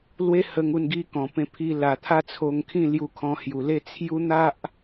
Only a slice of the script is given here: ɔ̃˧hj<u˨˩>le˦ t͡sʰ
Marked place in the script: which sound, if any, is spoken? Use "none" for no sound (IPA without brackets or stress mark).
u˨˩